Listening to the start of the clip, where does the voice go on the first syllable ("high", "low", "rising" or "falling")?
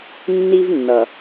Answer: high